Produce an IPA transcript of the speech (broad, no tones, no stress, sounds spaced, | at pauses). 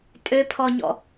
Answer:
tʼ ø pʰ ɔ ɲ ɔ̰